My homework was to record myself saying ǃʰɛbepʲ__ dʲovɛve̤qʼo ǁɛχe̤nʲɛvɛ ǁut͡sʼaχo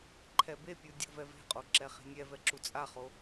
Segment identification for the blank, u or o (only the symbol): u